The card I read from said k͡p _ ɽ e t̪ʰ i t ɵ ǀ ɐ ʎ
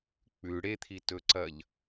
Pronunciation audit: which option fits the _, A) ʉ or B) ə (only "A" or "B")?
A